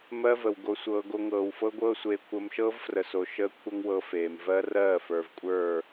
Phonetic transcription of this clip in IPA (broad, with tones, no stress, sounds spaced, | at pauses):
m ɜ˦ v ə˨ w ɡ o˧ sʷ ɤː˧ ɡ o˧ ŋ ɤː˨ w f ɤ˦ ɡʷ ɤː˦ sʷ eː˧ kʷʰ əː˧ m ʃ ɤː˦ v f r ə˨ s o˨ ʃ əː˦ kʷʰ ə˦ ŋ w ɤ˧ f eː˨ m v ɜ˦ r ɜː˦˨ f ə˞˨ v kʷʼ ə˞˦˨